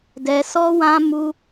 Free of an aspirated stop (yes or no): yes